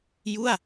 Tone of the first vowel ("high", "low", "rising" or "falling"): falling